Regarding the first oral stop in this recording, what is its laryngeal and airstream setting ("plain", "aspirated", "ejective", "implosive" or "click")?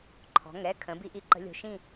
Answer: click